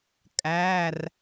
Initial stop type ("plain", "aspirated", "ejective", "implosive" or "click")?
ejective